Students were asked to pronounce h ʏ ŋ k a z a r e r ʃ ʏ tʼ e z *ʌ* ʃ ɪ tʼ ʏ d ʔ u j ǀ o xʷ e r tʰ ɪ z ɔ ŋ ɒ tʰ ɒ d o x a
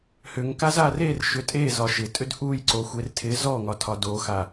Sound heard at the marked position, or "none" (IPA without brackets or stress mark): ɒ